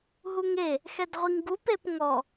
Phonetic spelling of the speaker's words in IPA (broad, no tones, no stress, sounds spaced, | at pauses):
ɦ u ŋ e | x ɛ d ʁʷ i ŋ ɡ u p e p ŋ ɔ